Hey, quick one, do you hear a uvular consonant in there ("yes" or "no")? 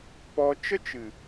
no